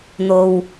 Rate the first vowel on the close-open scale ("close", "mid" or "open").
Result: mid